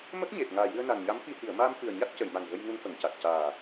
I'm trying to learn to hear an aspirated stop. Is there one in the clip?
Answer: no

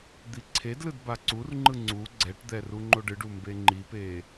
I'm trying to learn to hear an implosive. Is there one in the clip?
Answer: no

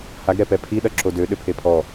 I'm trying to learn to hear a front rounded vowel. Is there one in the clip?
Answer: yes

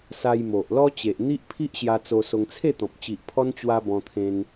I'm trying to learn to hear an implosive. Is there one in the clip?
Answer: no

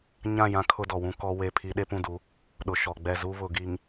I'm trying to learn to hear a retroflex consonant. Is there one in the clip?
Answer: no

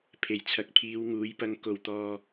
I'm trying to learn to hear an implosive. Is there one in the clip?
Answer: no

